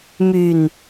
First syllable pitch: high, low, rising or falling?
low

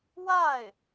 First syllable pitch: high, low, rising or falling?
falling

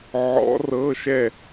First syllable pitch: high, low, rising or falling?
rising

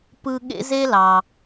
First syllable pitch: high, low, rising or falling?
high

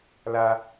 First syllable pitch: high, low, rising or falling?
high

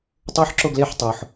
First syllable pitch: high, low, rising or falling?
high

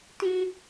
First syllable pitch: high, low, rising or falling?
high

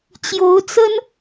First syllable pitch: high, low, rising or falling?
rising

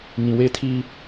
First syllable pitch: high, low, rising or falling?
low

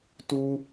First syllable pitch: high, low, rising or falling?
high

